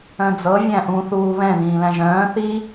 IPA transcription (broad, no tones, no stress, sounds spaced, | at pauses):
œ̃ d͡z ɤ vʲ æ̃ ʔ ũ θ uː β ɛ̃ ð ĩː l æ̃ ʒ œ̃ː θ i